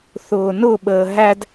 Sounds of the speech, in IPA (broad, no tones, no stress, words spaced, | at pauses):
θʊːnʊɓəː ɦæd